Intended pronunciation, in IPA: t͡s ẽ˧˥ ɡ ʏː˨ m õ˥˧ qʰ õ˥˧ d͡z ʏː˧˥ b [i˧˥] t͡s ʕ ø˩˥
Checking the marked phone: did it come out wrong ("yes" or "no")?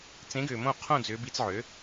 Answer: no